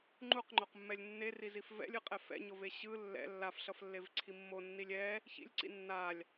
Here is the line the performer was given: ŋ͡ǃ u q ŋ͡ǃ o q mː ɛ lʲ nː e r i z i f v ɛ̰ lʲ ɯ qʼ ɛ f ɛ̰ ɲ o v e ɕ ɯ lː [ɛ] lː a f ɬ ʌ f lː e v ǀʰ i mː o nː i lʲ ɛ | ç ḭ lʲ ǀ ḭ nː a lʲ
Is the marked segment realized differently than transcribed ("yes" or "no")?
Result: yes